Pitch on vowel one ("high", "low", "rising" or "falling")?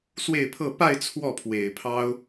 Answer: falling